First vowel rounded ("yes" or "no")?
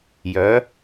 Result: yes